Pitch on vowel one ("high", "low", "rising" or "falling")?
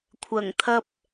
low